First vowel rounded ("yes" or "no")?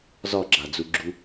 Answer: yes